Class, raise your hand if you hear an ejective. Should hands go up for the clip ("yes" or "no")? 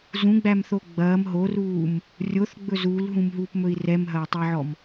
no